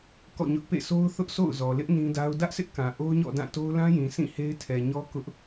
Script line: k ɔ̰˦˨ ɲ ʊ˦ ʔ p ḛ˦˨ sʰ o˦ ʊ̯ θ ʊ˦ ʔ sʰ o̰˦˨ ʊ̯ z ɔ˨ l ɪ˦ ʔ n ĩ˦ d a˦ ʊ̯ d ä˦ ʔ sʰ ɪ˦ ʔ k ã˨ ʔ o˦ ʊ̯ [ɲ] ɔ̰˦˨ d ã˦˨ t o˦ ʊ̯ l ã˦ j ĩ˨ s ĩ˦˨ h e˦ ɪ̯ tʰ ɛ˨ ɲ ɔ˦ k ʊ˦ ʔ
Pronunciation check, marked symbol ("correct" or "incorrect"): correct